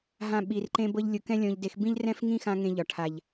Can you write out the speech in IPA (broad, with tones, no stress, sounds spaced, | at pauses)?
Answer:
ɦ ã˦ ɓ i˧ r ǃ ẽ˦ b ɤ˦ ʎ lʲ ʊ˧ k ɛ̃˦ lʲ ɔ̃˧ ʎ d e˧ x b ĩ˦ ʎ r ɛ̃˦ f ŋ ĩ˦ x ã˧ ŋ ẽ˧ ʎ ɒ˨ ʈʰ a˨ ʎ